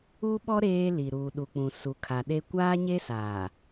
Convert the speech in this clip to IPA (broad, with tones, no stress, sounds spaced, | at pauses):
u˦ ɓ ɔ˦ ɾ eː˦ l i˨ ɾ uː˨ ɗ u˨ k͡p ũ˨ s u˨ kʰ a˨ ɗ e˦ kʷ aː˦ ɲ e˦ s aː˨